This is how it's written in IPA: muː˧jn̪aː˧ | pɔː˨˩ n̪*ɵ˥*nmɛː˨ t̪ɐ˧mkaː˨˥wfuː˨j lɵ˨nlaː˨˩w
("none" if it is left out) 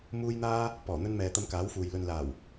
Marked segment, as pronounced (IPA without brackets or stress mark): ɵ˧